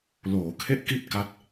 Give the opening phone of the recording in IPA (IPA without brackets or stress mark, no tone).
l